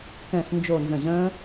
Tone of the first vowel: falling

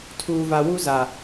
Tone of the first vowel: low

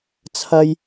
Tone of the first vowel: high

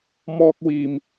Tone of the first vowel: high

